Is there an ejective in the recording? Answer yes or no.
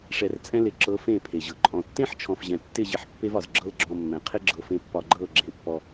yes